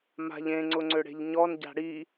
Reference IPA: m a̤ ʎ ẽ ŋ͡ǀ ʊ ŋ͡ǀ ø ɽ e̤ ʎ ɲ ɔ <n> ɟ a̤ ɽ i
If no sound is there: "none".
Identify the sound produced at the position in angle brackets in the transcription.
n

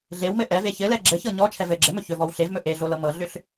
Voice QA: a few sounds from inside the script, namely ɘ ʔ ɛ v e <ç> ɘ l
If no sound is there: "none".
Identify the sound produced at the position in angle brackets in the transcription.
ç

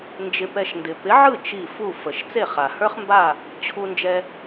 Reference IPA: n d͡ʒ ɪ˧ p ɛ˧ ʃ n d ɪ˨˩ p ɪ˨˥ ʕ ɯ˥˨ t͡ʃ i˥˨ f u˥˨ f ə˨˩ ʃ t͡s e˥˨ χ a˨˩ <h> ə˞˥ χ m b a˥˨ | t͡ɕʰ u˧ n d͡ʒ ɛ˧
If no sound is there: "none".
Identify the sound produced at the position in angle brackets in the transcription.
h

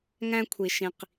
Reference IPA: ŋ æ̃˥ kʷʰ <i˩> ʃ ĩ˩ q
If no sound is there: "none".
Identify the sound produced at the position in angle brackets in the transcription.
i˩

